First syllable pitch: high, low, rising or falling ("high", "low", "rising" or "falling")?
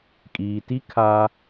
low